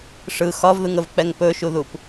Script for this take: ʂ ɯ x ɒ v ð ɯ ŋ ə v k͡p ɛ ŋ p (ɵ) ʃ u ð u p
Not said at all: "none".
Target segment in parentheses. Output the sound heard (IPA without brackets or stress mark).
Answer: ɵ